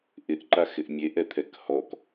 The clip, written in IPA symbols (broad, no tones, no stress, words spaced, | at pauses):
ʔɪʔǃaxɪʔ mʲeʔɛt̪ʰɛk hɔk